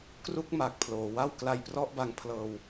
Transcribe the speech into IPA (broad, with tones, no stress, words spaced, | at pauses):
kru˥˩k̚ma˨˩k̚pʰloː˩˦wa˥˩w kla˧jprɔ˥˩ʔba˧ŋpʰlɤː˧w